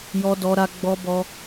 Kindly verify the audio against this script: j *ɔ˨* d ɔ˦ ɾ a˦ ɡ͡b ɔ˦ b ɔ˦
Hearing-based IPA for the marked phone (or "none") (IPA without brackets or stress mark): ɔ˦